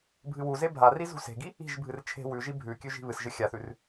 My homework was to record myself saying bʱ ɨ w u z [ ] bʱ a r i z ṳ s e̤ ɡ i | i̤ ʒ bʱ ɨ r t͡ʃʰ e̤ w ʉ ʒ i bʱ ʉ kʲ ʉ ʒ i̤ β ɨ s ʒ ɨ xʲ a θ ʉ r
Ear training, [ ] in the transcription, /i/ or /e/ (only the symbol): e